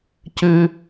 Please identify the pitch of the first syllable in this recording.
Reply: high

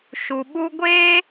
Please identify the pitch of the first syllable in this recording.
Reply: low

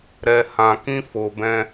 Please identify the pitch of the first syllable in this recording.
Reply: low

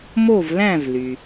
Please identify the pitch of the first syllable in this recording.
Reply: falling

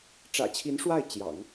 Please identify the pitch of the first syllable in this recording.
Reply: low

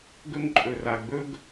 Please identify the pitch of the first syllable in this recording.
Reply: high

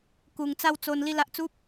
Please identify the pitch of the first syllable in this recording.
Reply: low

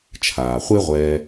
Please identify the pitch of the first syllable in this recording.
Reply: low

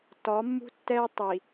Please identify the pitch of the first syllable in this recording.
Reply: rising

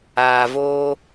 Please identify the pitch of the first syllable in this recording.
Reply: low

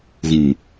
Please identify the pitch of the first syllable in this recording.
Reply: low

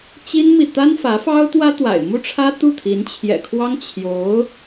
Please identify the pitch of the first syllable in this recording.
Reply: high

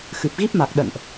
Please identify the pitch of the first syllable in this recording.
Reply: low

